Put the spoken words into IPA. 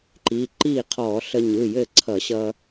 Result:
ǃ i˩˧˩ ǃ i˥˩ qʰ ɔ˧˩˧ ɬ ə˧ ɲ ɯ˩˧˩ j ɘ˥˩ ǀʰ ʌ˧˩˧ ɕ ʌ˧

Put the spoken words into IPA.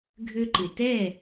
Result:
ɡʱ ø˧ ǃ ɪ˩ t ɛ˥˩

